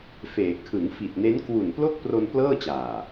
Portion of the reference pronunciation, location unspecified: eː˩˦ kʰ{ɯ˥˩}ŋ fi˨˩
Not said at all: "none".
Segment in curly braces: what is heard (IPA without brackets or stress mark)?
ɯ˩˦